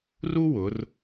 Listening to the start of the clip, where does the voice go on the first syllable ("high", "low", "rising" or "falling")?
high